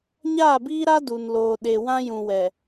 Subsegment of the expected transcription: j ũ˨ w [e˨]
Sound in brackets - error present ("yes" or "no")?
yes